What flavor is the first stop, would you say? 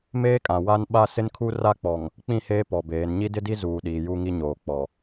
ejective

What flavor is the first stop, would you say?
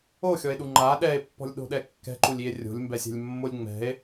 implosive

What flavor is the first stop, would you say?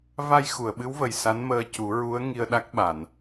implosive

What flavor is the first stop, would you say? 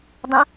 plain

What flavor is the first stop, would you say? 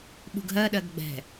implosive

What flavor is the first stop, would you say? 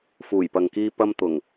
plain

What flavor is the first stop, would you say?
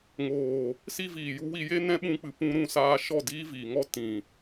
implosive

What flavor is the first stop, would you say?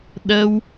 implosive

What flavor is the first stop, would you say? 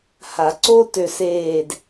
click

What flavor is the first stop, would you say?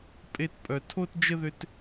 ejective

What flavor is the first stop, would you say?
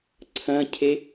click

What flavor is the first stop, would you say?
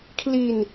aspirated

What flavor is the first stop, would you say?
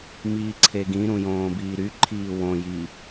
click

